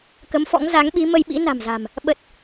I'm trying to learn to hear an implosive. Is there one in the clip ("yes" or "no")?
yes